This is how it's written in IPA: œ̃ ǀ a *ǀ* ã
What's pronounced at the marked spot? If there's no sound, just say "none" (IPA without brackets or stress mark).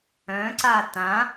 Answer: t